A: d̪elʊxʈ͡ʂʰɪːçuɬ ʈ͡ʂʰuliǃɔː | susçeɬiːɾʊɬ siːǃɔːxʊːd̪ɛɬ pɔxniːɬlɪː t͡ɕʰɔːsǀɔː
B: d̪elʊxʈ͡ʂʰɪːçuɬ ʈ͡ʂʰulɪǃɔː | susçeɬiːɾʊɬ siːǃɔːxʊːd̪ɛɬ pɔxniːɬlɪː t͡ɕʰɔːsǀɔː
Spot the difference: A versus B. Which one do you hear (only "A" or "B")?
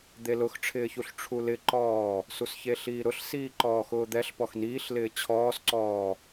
B